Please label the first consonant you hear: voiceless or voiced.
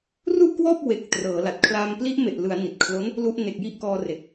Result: voiced